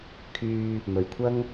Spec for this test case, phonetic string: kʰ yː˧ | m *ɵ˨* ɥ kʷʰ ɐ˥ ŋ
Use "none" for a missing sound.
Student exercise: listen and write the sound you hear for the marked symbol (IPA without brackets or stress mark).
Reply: ɵ˨